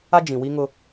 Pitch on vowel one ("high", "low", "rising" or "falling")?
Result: high